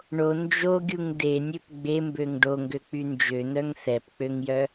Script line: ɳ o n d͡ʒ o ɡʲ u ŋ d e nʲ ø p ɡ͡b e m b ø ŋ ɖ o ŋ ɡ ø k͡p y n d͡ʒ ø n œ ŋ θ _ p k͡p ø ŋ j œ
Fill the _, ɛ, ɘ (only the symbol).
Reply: ɛ